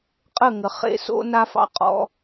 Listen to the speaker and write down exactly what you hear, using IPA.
qʼə˦˨ŋə˨ χḛ˦ so̰˦ na˦fɑ̰˦qʼɔ̰˦

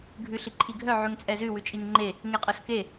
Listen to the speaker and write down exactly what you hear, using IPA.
ɡʱʉɬiǃʰiɡʱœ ʕʉŋt͡sʼɛzʉ wʉt͡ʃʼiŋŋ͡ǃe | ŋeqʼœske

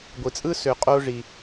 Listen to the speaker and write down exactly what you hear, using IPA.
ɡʷi˩t͡sʼɯ˥sø˨ qʼo˦ʐi˨

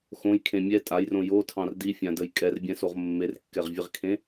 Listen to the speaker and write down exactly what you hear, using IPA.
xõjkʰẽ mʲɛ tʼajrõ jotʰɑ̃r difʲãdəj kʼɛrbʲɛ̃soʁ mːerkːɛʁvʲeʁkʰẽ

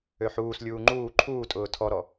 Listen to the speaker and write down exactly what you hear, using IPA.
øħuːslʲuː ŋ͡ǃuː ǃʰuːtʼʊː tʰɔɾɔ

